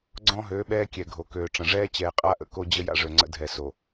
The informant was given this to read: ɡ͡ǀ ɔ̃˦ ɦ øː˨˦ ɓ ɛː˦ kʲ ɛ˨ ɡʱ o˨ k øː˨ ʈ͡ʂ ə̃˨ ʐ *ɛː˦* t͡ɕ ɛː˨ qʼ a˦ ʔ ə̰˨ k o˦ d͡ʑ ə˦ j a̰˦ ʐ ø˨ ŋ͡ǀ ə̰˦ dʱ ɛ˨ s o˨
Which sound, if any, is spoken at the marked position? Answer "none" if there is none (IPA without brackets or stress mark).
ɛː˦